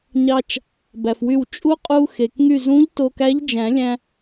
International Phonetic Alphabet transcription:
ɲɑ˧t͡ʃ | bæ˩fwy˧˩w t͡ʃʼu˧˥ qʼu˧xe˩kŋy˧˩zũ˧˥ʎ to˧kæ˧˥ʎd͡ʒæ̃˨˩˦lʲæ̃˧

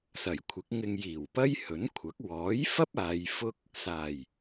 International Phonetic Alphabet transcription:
sɐ˨˩jkʷʰɪ˨˥k̚ŋɪ˧ŋ jiː˨˩wpɐ˥jhɵ˨˥nkʷʰɐ˨˥k̚ wɔː˨˥jfɐ˥p̚ aː˨˧jfʊ˥k̚ | saː˨˩j

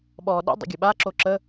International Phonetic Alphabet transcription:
ɓɔ ɗə̰ dˤə̰ɡʲɘɓa ǁoǁə

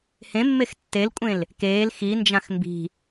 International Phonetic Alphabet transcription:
hẽmːex tːelkʷʼẽl | keːl xind͡ʒãx mbi̤

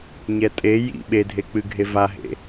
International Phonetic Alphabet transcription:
ɲɛtʼe jḭ ɓedʱek͡pɨɡʱe vaɦḛ

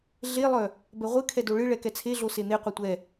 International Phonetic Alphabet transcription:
ɮelˠœ | bɛʁʷɨ kʰɛdoɭɨ ɭɛkɛt͡sʰeɮo sen̪eqʷœ tʷɛ

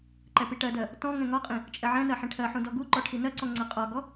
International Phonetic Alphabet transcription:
ǃɛpiʈɜdɜ | tɔ̃ ŋɛ̃ŋɒqʼĩ | t͡ʃʼɛʕɛ̃nɜ ħĩʈʰɜħũ dɔɡuǃɔ ʈʰinɜǀɔ̃ ŋ͡ǀɜqʼɒɡɔ

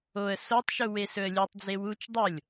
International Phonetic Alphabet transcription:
oə̯ sotˤʃu wesɵə̯lʲutˤd͡ze wut͡ʃ dˤolʲ

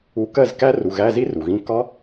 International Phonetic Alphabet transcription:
u˧kɜ˥˨z kæ˦˥ru˩˧˩ ɣæ˧˥˧zi˦˥ ru˩ɣĩ˧˥˧ kɒ˦˥

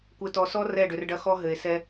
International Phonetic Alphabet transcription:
kʷɘ˨tɔ˨sɔ˦ rɛ˦˨ɖʏ˨rɖɐ˦ xɔ˦ ɦɘ˨e̯sɛ˦

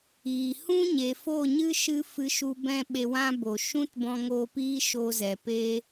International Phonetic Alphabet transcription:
iː˨ hũ˦ɲe˨fo˦˨ɲɨ˦ ʃɨ˦ fɨ˧ʃu˧ bɛ̃˦ɓe˧wã˦ bo˨ ʃũ˦tbɔ̃˧ŋoː˧piː˦ ʃo˧zɛ˨peː˦

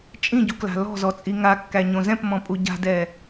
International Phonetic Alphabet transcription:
t͡ʃʼĩɟukla̤ lɔ̤zɔt͡sʼi ŋakːæɲõ zɛ̃pmɔ̃pʼu ɟa̤dɛ

